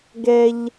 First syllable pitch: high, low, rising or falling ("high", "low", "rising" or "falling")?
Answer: high